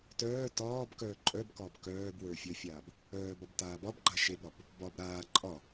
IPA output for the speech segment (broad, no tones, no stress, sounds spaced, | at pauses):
t œː t ɒː b k œː ǃʼ œ b k ɒː b k œː b w ə˞ fʲ ə fʲ aː b | œː b ɒ b t aː b ɒ b ɡ͡ǃ a ʃ e b ɾ ɒ b | b ɒ b ɾ aː ǃʼ ɒ